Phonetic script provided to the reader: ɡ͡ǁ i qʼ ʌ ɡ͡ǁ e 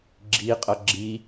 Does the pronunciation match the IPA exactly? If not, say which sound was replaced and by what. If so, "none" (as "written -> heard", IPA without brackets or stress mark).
e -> i